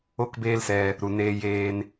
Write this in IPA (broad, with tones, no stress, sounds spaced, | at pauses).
o˦ k b eː˦ l s ɛ˧ | ɾ u˨ n eː˧ j eː˧ n